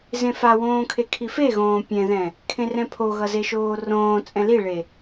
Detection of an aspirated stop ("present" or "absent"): present